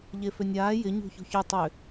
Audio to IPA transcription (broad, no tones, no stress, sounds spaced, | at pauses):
ʎ e f ø nʲ aː j ɪ ɲ ṳ ç ṳ ç y tˤ ʏ